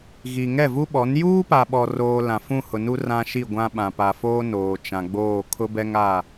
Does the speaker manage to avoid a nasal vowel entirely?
no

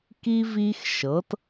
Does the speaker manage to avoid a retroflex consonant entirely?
yes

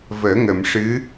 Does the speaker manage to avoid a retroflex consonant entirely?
no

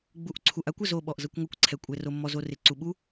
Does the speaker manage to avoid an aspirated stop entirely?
no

